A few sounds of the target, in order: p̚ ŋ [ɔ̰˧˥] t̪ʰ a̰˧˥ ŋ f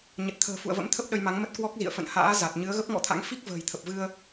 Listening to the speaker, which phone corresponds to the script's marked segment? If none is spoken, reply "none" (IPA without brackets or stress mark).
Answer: ɔ̰˧˥